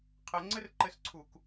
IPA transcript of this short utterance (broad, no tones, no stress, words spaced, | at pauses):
qʰɘŋ͡ǀɘr ǃɘsǀʰuk